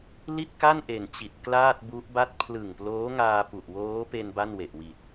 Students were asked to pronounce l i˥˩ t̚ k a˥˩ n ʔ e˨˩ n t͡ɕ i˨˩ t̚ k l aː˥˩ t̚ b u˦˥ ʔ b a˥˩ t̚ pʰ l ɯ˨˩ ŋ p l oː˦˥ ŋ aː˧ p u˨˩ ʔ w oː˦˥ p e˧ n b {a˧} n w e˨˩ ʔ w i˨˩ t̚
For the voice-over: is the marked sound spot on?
no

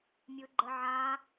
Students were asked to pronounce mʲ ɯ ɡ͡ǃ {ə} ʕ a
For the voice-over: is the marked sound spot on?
yes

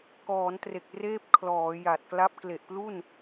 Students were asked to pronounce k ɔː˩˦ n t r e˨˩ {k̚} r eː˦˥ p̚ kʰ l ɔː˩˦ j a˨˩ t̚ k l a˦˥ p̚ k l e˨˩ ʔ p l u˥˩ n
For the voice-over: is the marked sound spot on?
yes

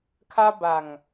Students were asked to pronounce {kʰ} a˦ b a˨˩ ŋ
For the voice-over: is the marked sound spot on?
yes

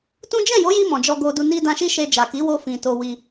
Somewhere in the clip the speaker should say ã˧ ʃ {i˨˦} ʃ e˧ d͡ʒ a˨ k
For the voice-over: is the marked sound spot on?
no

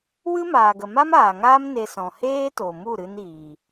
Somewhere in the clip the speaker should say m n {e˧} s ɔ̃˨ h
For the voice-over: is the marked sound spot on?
yes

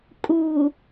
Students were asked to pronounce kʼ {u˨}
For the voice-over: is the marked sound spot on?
yes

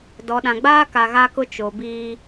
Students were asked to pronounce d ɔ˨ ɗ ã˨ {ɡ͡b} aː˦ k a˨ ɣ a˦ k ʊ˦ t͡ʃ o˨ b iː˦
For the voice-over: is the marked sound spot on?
yes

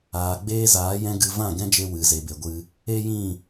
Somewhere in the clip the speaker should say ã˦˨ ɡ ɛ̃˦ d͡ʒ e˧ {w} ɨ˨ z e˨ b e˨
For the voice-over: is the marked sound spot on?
yes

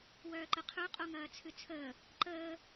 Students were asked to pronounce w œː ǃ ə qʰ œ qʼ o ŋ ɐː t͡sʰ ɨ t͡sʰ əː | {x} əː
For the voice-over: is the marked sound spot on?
no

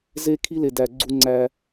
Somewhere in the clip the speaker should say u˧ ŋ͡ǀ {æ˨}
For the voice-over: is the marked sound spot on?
no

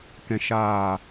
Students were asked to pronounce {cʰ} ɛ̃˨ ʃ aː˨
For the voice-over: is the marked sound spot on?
no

